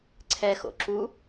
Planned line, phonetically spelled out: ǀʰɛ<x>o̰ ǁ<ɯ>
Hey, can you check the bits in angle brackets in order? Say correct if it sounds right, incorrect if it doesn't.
correct, incorrect

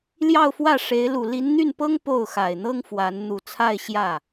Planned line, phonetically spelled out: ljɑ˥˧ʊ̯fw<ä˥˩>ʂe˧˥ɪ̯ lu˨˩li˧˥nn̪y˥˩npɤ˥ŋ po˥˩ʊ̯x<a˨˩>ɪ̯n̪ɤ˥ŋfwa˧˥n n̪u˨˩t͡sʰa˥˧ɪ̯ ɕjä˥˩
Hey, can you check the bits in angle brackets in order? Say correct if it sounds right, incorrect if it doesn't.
correct, correct

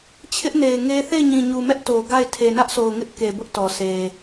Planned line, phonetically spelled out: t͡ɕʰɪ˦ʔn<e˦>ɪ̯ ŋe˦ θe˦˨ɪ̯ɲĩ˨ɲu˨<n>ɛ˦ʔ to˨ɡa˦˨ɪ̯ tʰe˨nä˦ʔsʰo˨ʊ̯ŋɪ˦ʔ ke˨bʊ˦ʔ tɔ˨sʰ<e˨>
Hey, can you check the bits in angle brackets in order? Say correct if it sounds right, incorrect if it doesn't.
incorrect, incorrect, correct

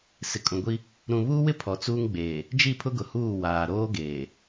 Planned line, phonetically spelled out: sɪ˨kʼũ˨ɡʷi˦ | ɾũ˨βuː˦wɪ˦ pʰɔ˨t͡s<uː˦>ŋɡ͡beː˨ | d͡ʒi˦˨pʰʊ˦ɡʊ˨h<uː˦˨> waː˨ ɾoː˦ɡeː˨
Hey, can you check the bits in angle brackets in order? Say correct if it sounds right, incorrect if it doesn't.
correct, correct

